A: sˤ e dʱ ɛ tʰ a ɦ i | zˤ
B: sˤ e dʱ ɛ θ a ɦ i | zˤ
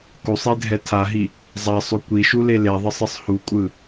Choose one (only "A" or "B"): A